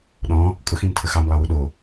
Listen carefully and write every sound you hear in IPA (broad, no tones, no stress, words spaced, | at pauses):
ɗɔ̃ | kʼʊxĩmtʰə xɑmlˠɑwu ɗo